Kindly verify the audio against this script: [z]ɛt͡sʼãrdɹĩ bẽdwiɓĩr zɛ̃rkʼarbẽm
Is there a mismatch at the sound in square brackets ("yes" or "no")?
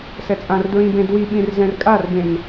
yes